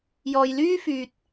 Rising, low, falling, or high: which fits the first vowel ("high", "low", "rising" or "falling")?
low